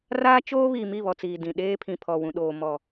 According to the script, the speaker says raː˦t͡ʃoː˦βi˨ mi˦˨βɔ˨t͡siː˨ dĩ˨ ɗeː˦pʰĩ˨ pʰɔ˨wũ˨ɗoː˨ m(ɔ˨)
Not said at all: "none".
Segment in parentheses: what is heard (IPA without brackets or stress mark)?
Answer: ɔ˨